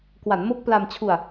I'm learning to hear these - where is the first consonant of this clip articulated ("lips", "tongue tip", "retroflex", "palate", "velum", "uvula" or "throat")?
velum